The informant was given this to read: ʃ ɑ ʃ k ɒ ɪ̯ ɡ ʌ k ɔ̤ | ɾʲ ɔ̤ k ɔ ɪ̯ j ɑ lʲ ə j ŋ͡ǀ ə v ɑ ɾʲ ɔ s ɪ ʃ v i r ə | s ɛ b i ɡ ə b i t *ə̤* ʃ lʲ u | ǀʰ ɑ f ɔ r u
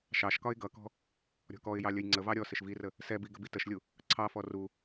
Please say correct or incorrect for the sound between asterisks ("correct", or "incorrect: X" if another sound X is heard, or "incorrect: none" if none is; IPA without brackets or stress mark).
incorrect: ə